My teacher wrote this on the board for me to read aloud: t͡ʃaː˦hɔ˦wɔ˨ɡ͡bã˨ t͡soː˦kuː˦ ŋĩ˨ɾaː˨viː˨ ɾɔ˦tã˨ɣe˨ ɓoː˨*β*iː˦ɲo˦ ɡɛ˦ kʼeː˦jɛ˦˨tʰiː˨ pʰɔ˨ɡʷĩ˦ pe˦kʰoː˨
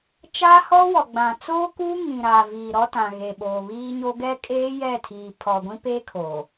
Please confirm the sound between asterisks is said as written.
yes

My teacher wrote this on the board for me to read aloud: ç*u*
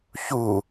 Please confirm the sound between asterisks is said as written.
yes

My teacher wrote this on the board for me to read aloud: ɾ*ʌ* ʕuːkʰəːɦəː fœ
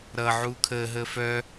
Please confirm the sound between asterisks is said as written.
yes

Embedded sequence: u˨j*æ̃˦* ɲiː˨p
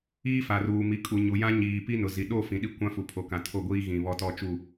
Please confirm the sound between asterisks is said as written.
no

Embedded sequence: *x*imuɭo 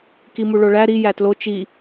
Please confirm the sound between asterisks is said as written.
no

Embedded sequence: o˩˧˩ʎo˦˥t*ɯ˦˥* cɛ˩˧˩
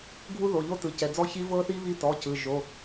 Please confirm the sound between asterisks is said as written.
no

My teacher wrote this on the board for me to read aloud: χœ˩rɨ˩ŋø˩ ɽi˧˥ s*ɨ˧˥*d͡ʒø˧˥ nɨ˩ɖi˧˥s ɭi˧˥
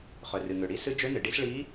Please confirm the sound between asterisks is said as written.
yes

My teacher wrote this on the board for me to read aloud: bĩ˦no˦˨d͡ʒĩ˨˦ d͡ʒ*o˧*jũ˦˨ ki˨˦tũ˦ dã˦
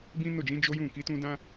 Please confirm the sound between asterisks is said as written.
no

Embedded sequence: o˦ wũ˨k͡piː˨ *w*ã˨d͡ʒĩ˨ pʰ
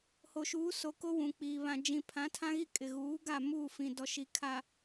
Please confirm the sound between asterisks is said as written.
no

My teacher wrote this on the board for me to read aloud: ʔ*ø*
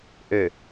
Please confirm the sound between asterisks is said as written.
yes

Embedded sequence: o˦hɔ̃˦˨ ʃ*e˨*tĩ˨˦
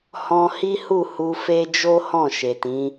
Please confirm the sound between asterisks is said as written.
yes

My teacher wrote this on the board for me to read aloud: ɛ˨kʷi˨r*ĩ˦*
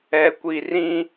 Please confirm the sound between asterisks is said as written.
yes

